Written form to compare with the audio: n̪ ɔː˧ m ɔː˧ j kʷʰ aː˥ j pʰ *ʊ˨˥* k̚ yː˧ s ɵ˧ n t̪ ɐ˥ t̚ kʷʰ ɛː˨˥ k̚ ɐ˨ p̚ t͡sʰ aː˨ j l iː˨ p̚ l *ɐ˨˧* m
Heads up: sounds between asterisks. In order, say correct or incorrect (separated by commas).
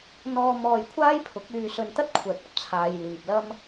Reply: correct, incorrect